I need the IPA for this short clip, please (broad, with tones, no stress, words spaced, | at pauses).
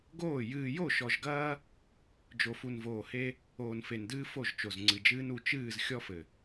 ɡoː˦˨ jɨː˨jo˦˨ʃɔ˨ʒɡɐː˦ | d͡ʒo˨fu˨nvoː˨he˦ | oː˨nfe˨ndɨː˦ fo˦˨ʒt͡ʃo˨zŋ͡ǀɨ˨d͡ʒɨː˦n u˨t͡ʃɨː˦˨z xʲɔ˦fɘ˨